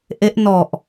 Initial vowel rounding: unrounded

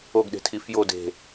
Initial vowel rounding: rounded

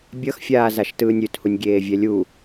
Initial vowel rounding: unrounded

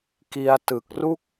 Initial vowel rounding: unrounded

